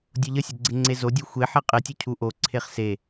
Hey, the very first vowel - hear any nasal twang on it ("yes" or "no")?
no